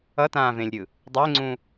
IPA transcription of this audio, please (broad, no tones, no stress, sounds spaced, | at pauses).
ʌ t ãː v ẽ lʲ ɾʲ ɯ | dˤ e ŋ͡ǀ ũ